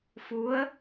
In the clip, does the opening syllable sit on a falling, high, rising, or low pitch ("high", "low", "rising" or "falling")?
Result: rising